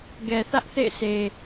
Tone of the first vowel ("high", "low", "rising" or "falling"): low